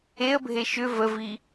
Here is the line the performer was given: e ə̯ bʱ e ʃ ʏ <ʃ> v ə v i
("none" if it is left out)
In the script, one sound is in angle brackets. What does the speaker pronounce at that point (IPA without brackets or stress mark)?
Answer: none